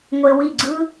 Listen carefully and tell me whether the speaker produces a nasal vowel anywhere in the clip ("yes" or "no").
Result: no